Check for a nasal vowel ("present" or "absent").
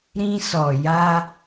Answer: present